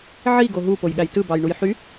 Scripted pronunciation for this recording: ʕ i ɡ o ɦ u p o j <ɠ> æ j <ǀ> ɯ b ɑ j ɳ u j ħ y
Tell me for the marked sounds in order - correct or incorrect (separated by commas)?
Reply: correct, incorrect